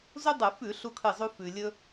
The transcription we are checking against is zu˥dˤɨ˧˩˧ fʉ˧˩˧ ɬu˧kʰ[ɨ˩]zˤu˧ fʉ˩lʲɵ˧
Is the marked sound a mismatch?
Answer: yes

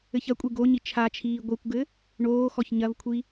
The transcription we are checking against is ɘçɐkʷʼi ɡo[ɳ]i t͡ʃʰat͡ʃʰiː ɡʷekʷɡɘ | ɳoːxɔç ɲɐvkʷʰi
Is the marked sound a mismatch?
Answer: yes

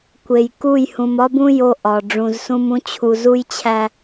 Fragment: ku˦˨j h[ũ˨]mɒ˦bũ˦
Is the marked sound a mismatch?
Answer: no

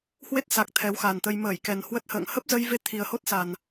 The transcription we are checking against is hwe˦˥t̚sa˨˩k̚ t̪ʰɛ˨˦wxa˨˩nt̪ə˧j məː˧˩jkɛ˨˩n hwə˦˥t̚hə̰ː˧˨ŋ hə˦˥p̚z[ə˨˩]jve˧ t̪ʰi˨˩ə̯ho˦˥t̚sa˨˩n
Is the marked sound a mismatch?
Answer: yes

